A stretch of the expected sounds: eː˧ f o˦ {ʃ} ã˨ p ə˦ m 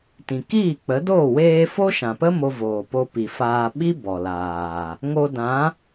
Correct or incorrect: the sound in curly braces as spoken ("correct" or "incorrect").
correct